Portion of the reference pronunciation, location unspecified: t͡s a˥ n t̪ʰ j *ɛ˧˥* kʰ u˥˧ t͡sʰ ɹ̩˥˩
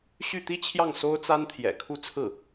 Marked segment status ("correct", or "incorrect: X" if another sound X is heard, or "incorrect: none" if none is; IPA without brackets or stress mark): incorrect: ɛ̰˨˩